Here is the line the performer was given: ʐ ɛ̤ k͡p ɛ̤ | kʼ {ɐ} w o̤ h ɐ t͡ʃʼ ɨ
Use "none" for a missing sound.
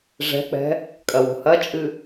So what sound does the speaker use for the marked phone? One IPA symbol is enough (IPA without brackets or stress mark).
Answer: ɐ